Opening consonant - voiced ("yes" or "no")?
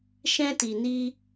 no